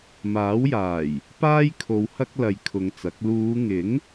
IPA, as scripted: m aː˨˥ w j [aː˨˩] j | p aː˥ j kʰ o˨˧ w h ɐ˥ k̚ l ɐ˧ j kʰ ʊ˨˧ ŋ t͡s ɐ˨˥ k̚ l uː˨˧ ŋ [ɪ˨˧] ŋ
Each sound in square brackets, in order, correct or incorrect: correct, incorrect: ɪ˨˥

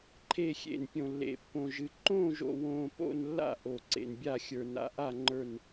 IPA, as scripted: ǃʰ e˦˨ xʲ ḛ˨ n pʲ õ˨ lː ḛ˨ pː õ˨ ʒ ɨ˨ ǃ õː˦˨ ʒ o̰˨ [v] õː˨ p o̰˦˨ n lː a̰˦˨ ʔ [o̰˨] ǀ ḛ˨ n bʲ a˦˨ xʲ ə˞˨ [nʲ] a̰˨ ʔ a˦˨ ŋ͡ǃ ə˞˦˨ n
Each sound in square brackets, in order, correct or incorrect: incorrect: w, incorrect: o˨, incorrect: n

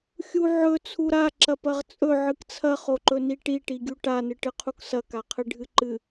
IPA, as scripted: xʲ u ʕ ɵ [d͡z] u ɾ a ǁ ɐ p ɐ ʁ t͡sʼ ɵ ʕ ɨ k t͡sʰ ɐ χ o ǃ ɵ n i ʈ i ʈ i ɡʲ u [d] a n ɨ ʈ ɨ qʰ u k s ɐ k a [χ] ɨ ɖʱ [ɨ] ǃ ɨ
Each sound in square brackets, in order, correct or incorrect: incorrect: t͡sʰ, incorrect: ʈ, incorrect: qʰ, correct

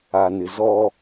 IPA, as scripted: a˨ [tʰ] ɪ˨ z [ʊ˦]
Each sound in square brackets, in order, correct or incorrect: incorrect: n, incorrect: ɔ˦

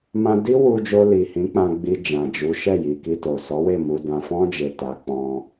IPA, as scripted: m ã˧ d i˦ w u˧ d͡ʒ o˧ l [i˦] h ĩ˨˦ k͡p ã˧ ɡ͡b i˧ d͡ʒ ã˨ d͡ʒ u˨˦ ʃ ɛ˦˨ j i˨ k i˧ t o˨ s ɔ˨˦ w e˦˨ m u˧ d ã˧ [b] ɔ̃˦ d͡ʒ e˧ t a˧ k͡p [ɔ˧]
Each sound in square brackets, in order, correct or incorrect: incorrect: i˨, incorrect: f, incorrect: ɔ̃˧

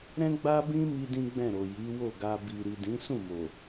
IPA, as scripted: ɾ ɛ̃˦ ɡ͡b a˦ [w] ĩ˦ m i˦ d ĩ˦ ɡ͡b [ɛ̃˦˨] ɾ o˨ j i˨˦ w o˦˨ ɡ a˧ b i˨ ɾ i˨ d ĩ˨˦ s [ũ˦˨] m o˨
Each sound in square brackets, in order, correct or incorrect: incorrect: b, correct, correct

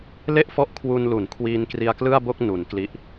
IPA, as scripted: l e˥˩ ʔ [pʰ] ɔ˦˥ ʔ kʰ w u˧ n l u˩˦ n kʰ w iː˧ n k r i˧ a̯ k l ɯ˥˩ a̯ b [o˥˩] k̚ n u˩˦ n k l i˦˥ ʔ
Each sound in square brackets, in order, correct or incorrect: incorrect: f, correct

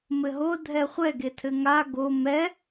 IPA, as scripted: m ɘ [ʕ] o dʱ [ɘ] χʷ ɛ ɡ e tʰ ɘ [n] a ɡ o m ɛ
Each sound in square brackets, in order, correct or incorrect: incorrect: ɦ, incorrect: ɛ, incorrect: ŋ

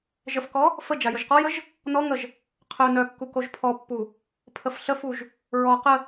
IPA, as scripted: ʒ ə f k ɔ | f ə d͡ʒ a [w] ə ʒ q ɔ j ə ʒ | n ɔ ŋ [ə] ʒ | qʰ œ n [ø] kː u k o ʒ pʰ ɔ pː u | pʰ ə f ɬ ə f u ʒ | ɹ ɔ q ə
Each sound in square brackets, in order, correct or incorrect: incorrect: j, correct, incorrect: œ

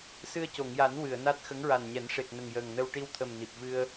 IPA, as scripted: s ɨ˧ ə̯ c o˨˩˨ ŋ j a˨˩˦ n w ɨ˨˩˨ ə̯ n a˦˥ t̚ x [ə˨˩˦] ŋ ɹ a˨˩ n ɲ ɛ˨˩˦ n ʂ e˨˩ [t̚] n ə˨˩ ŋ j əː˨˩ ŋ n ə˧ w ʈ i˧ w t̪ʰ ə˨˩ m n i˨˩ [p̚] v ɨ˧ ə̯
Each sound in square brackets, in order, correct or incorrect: incorrect: ə˧˥, incorrect: k̚, correct

